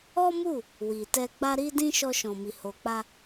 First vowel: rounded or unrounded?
rounded